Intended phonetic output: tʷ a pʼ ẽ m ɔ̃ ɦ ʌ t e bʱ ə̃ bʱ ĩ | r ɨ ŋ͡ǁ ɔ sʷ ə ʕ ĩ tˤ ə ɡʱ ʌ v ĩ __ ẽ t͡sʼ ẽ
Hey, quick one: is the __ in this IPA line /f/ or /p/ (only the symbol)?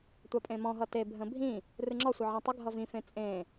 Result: f